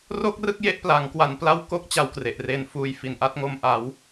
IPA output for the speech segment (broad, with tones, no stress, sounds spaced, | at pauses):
r o˥˩ k̚ r ɯ˥˩ k̚ j e˦˥ ʔ p l a˩˦ ŋ k w a˧ n p l a˥˩ w k o˥˩ k̚ t͡ɕ a˦˥ w k r e˨˩ ʔ r eː˧ n f uː˧ j f i˩˦ n ʔ a˥˩ t̚ ŋ o˧ m ʔ a˩˦ w